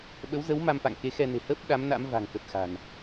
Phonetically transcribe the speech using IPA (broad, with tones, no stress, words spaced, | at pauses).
ɓə˨˦wzə˨˦w ma˧mfa̰˧˨ŋke˨˦ xɛ˧ne̤˨˩ hə˦˥p̚ ɗa˨˦mna̰˧˥m va̤˨˩ŋ kə˨˩t̚xa̤˨˩n